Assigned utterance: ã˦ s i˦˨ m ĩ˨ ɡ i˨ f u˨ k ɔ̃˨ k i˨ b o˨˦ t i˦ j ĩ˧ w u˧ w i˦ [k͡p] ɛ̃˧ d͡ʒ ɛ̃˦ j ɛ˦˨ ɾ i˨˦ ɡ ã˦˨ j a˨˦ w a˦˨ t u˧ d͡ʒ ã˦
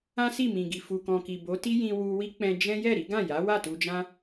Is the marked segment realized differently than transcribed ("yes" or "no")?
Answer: no